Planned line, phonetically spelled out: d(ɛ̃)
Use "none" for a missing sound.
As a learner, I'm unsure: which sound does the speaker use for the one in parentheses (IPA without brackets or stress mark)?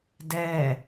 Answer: ɛ